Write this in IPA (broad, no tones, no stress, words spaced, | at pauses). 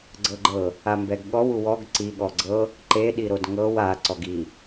ɡ͡ǀɤɡ͡ǃɤ | ambɛɡɠɔw uwɔɡ ǀi ɠɔɡ͡ǀɤ | ǃe ɗiɾodŋɤw a ǀɔɡi